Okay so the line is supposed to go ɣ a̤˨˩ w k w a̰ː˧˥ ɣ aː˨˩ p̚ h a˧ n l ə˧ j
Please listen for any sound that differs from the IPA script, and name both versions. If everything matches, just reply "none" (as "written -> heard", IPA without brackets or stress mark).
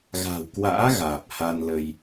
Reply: none